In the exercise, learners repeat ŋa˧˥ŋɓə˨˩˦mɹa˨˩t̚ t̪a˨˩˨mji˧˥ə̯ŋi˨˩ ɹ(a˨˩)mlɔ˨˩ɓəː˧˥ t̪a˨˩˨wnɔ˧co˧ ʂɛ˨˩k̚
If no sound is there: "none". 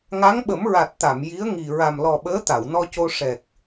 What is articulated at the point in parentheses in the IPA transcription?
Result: a˨˩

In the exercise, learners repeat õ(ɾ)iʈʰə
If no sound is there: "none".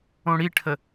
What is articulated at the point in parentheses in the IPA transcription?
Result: ɽ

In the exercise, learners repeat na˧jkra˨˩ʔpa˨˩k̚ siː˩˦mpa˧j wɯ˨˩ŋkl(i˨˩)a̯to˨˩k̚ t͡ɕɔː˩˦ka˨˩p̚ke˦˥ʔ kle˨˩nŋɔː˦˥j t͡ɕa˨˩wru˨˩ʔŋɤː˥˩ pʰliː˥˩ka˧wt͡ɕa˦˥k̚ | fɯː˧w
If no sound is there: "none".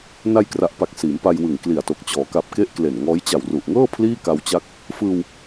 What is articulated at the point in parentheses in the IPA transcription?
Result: i˨˩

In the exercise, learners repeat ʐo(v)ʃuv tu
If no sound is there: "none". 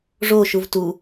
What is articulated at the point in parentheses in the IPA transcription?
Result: none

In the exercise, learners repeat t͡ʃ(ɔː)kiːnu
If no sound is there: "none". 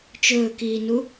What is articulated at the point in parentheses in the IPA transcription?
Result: ɵː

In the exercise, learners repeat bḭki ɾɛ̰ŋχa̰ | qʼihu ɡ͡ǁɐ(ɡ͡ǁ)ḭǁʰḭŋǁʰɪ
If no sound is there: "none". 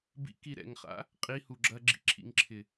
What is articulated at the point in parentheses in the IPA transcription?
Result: ɡ͡ǁ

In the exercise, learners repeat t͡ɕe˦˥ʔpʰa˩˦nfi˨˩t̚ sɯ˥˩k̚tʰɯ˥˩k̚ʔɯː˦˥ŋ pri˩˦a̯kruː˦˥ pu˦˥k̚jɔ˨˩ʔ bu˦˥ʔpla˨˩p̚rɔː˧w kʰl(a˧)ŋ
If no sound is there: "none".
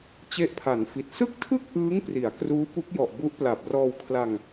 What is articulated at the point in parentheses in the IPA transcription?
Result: a˧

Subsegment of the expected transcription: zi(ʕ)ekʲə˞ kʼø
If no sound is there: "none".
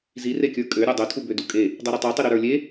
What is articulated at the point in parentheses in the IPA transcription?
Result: r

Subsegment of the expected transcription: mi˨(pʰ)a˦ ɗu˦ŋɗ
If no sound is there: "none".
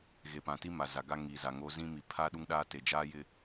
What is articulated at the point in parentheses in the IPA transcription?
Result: pʰ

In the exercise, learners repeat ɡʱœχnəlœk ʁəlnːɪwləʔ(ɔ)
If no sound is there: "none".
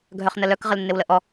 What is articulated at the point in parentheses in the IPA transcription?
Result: ɔ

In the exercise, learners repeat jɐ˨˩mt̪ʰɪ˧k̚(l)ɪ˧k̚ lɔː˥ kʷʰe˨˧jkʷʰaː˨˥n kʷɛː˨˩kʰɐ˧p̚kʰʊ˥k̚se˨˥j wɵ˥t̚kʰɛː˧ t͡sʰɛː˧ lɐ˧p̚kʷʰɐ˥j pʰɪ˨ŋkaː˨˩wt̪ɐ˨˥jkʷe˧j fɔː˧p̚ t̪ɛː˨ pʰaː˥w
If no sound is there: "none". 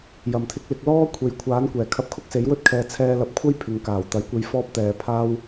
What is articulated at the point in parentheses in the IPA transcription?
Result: l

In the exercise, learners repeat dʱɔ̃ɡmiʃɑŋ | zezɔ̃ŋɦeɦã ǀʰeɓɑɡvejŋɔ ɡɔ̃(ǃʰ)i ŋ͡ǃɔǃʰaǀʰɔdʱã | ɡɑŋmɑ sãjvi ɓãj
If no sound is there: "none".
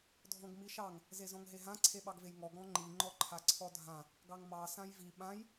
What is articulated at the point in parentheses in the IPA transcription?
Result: ŋ͡ǃ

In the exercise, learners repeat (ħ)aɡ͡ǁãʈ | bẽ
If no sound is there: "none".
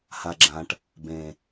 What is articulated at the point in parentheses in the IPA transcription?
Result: h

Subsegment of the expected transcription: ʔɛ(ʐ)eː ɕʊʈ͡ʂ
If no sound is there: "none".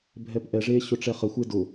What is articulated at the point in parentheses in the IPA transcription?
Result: ʐ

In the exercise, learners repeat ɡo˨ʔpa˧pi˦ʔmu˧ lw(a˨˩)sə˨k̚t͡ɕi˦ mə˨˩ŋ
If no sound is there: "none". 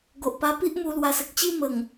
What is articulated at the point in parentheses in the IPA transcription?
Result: a˧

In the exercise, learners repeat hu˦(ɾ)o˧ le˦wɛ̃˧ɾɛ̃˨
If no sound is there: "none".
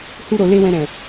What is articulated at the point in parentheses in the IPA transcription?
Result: ɾ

